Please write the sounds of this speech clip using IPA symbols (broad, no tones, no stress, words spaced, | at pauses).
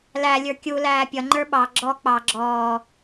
læ lʲə˞kʲu læːpʲʌ ŋ͡ǃə˞ɓɑ ɡ͡ǁɔ k͡pɑ ɡ͡ǁɔː